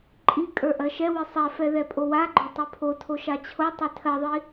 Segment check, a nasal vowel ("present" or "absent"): absent